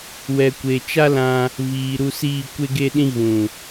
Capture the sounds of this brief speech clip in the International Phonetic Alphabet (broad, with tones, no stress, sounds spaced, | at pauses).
w ɛ˨ kʷ e˨ t͡ʃ a˦ l ã˧ | v iː˨ ɾ u˧ s iː˦˨ kʷ e˦ ɡ e˦ ɗ ĩ˦ ɣ ũ˨